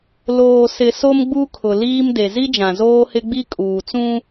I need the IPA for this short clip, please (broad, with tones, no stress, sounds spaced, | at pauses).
l oː˨ s ɪ˨ s o˦ m ɡ͡b u˦ kʰ ʊ˨ l iː˦ m d e˨ z i˦ d͡ʒ ã˨ z oː˦ h ɪ˦ ɡ͡b i˦ kʼ uː˨ t͡s ũ˦